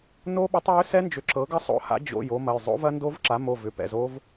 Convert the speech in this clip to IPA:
no˦˥ɓʏ˩˥tˤ jʏ˦˥sɛ˦˥nd͡ʒʏ˩˥ ǁɤ˩˥ɡɐ˦˥sˤo̰˩˥ha̰˩˥ d͡ʑo̰˩˧˩j o˦˥mɐ˩˧˩j zˤo̰˦˥vɐ˦˥ndo˦˥vǁa˩˥ mo˩˧˩vʏ˩˧˩pɛ̰˩˧˩zo˦˥v

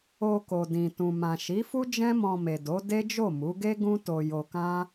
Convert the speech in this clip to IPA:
o˧ko˨dĩ˨ tũ˨mã˨ʃi˨˦fu˦ d͡ʒɛ̃˦mɔ̃˧me˨do˨˦ de˦d͡ʒo˦˨ mu˨˦ɡe˦ɡũ˦ to˧jo˧kã˦

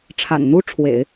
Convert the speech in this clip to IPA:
ʈ͡ʂʰa̰˨˩nn̪u˥ʈ͡ʂʰwḛ˨˩˦ɪ̯

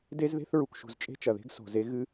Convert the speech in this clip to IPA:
de˦zðe̤˦θɹu˨kʃṳ˨z t͡ʃʼe̤˦t͡ʃɐ˨ðe̤˦ɡ so̤˨ze˦ ɣɨ˦

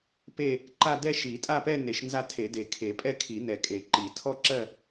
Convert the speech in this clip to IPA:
pe˥˧ | ǃa˥˧ dɛ˥˧ʃi˨˩˦ tʼa˥˧pɛ˥˧ne˨˩˦ʃ nza˥˧tʰe˨˩˦de˨˩˦ kʰe˨˩˦pʼɛ˥˧kʰi˨˩˦ nɛ˨˩˦kʼe˨˩˦ ǃi˨˩˦ tʰɔ˥˧ǁɜ˥˧

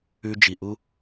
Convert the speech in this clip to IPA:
ʉ˧d͡ʒi˨ʔu˦

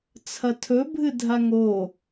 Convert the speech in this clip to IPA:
t͡sʰɐtʰɵ bʱɨdʱaŋo

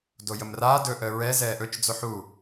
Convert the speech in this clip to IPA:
dojəmraː dɵ ʔəːɹɛ zɛːʔɵt͡ʃ d͡zoħu

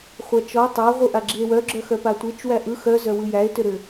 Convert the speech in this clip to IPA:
χʷat͡ʃɔ tˤa ʁʷɯʔaɡ͡ǁie̯wœ ɡ͡ǁœxœpatʷet͡ʃ wæʔɯ xœ zœwɯjæe̯ tʏɾʏ

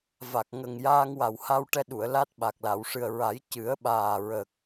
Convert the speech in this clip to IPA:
va˨˩k̚ŋə˨˩ŋ jaː˧ŋwa˨˩w ha˧wʈɛ˧ɗu˨˩˨ə̯ la˦˥t̚ɓa˨˩k̚la˨˩˨wʂɨ˨˩ə̯ ɹa˨˩˦jcɨ˨˩˦ə̯ɓaː˨˩ɹə˨˩k̚

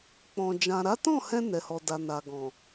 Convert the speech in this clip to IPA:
k͡pɔ̃˨ d͡ʒã˨ɾa˨˦tɔ̃˦˨hɛ̃˧ nɛ˨hɔ˨da˨ na˨ɡɔ̃˨

